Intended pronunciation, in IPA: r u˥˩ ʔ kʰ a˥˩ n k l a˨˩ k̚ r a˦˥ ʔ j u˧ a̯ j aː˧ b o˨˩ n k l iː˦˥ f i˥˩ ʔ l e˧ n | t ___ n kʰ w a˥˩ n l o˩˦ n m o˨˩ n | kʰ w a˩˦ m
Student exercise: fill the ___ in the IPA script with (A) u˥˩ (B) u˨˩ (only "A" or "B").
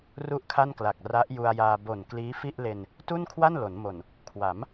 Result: A